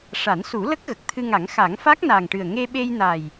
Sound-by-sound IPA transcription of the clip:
ʂa˨˩˦nsu˨˩˦lə˦˥k̚ ɣə˨˩k̚ t̪ʰɨ˧ŋa˨˩˦ŋxa˨˩˦ŋ fa˦˥k̚na˨˩ŋʈɨ˨˩ə̯ ŋe˧ɓe˧jna˨˩j

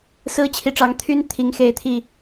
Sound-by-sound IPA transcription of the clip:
sɹ̩˦ t͡ɕʰi˨˦ʈ͡ʂɑ˨˦ŋ t̪ʰy˦n t̪ʰi˨˦ŋxe˨˦ɪ̯t̪ʰi˨˩

